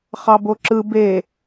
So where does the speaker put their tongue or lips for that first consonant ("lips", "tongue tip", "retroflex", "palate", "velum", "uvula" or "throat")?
uvula